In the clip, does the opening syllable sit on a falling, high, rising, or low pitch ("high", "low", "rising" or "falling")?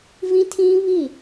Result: high